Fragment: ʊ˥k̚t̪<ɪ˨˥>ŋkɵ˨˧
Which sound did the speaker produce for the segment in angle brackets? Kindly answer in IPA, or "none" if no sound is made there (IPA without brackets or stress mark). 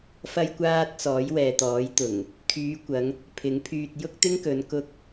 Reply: ɪ˥